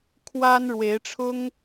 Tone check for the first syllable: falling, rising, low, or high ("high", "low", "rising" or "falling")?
high